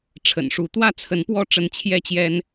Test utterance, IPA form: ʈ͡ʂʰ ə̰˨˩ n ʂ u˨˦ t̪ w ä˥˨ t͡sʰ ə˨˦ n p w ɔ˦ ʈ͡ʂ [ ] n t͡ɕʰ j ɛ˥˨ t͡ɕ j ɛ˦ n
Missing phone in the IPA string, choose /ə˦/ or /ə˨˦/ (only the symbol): ə˨˦